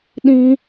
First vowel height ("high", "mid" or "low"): high